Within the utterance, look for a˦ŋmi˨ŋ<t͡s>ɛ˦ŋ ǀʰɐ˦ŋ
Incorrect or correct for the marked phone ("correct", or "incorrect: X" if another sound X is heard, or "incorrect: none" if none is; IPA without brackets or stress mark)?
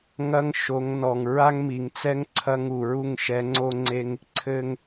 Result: correct